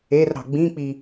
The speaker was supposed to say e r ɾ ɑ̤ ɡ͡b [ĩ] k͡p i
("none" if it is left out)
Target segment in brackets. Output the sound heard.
ĩ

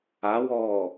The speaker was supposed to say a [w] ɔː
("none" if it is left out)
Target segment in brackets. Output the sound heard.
w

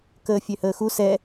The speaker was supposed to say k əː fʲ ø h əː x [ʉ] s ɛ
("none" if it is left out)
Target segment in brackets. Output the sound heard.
u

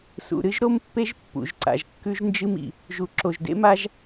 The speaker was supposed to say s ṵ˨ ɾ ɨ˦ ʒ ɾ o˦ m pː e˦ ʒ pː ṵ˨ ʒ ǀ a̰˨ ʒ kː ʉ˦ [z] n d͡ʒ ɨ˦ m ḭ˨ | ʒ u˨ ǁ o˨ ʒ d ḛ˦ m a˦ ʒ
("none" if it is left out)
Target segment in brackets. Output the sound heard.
ʒ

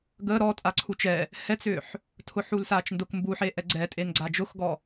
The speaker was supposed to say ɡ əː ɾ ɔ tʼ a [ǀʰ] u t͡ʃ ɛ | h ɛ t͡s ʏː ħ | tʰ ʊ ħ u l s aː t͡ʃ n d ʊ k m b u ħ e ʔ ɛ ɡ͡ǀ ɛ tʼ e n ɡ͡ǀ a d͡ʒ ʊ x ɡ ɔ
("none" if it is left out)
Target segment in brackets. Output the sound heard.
ǀʰ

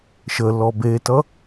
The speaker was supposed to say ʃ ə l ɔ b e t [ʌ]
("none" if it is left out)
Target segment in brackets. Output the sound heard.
ʌ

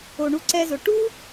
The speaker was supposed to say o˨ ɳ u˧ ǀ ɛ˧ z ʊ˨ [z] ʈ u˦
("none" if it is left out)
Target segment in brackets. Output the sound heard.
none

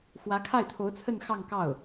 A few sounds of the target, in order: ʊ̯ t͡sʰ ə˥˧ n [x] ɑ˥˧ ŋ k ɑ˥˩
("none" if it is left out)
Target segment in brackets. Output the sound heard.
x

